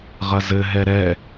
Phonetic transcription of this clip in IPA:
ʁ ɐ z ɘ ɦ ɛ ɾ ɛ

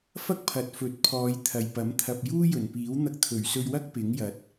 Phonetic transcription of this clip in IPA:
f ɐ˥ k̚ pʰ ɐ˨ t̚ f ɵ˨˥ t̚ pʰ ɔː˨˧ j t̪ʰ ɐ˨ j p ɐ˨˥ m t̪ʰ ɐ˧ p̚ j uː˥ j ɵ˨˩ n p iː˨˥ w n̪ ɐ˧ k̚ t̪ʰ ɵ˨˩ ɥ s ɵ˧ ɥ w ɐ˥ k̚ p ɪ˨˥ ŋ j ɐ˨˥ t̚

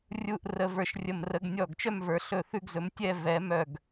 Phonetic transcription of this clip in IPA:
rʲ u˥˧ ʔ r ə˧ v ə˞˧˩ ʃ rʲ ə˧˩ m r ə˧ ɡ nʲ ɔ˧˩ ɡ t͡ʃ œ˥˧ m v ə˞˩˧ ɬ ɵ˧˩ θ ʉ˥˧ ɡ z ɵ˩˧ m tʲ ɛ˥˧ v ɛ˩˧ m œ˧˩ ɡ

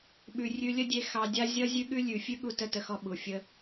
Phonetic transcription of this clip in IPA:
ɓ ʉ˨ rʲ ʉ˧ lʲ ə˦ dʲ e˧ x ɑ˧ dʲ a˦ zʲ ʌ˦ zʲ ʉ˦ ɠ ʉ˦ lʲ ʉ˨ fʲ ʉ˦ ɠ u˧ t ə˦˨ t ə˧ x ɔ˧ ɓ u˨ fʲ ə˧

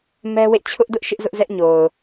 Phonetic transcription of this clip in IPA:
m ɛ˦ w ḛ˦˨ t͡ɕʰ ʊ˦ ʔ d ʊ˦ ʔ ʃ ɪ˦ ʔ z ʊ˦ ʔ z ɛ˦ ʔ ɲ o˨ ʊ̯

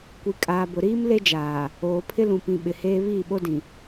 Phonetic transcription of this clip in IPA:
kʷ i˨ kʼ aː˨ b ʊ˨ ɾ iː˦ m l e˦ d͡ʒ aː˨ | oː˨ pʰ ɪ˦ l ũ˨ p ĩ˨ ɓ ɪ˨ h eː˦ β iː˦˨ ɓ o˦ d ĩ˨

